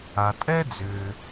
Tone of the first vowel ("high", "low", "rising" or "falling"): low